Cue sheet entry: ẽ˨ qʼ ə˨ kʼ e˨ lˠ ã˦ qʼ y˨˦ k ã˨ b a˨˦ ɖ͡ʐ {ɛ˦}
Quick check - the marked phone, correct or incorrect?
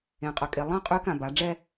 correct